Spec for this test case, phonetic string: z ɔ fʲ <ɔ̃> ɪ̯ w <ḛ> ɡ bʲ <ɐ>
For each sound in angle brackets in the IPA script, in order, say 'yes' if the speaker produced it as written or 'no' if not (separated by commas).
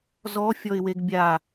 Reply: no, no, no